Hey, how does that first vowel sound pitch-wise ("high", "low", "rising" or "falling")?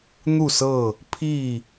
falling